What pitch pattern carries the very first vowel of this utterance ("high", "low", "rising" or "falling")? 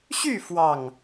falling